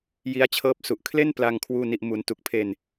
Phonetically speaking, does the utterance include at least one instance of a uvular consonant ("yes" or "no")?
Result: no